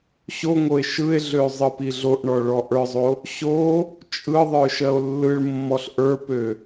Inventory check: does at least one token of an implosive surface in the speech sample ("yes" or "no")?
no